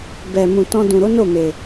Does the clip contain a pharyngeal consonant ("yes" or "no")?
no